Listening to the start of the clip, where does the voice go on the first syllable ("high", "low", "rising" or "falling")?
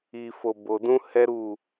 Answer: low